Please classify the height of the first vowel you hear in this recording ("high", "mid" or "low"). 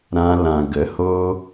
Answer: low